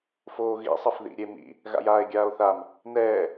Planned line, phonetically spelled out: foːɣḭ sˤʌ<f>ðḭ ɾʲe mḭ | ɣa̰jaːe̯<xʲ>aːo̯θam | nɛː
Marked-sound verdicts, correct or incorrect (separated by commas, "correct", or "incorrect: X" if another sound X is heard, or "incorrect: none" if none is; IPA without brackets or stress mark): correct, incorrect: ɡʲ